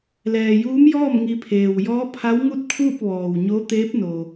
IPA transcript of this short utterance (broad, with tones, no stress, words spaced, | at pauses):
lɛː˩juː˧˥mjɔː˥˨m ŋi˧pʰeː˩w jɔː˧˥pʰa˧˥wŋu˥˨t̚kʰuː˥˨p̚ ʋɔː˩wɲo˧˥ t̪eː˧˥p̚no˩